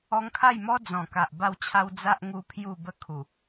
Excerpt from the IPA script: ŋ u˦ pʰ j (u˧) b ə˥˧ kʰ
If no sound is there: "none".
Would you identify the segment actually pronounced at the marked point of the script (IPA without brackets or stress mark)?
u˥˧